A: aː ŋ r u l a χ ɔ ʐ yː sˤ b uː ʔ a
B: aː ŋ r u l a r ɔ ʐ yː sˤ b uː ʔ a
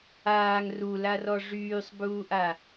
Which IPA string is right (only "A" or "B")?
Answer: B